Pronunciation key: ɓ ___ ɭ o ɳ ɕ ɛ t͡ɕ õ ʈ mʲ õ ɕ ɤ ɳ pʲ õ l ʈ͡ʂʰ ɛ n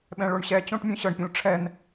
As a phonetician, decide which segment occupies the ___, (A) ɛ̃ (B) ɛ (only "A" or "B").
A